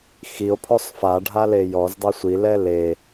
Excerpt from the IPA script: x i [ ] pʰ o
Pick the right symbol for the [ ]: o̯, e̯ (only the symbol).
o̯